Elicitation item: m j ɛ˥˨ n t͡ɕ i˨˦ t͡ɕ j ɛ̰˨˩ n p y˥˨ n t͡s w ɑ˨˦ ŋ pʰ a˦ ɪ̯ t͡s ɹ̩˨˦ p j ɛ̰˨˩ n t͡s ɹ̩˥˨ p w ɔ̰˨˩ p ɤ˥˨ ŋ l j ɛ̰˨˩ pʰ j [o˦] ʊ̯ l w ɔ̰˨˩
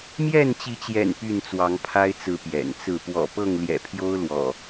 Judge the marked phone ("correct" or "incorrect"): correct